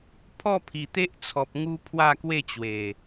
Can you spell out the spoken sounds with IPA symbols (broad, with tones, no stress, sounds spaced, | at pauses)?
pʰ ɔ˥˧ pʰ i˨˩ t̪ e˦ ʔ t͡sʰ ɔ˨ p̚ ŋ u˦ pʰ w a˥˧ k w e˥˧ t͡ɕ w e˨˩